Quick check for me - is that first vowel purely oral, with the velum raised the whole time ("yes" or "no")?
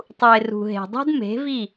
yes